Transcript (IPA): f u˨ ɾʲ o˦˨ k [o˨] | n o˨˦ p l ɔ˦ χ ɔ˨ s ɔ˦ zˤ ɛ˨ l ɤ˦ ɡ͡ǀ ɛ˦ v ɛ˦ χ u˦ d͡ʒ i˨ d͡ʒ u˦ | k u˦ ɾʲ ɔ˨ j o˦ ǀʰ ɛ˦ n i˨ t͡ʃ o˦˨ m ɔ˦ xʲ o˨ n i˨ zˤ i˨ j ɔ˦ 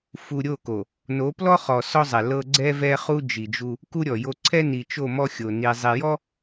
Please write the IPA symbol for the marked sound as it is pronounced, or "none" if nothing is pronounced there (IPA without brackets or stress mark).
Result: o˨